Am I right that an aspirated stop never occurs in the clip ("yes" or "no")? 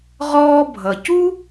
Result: yes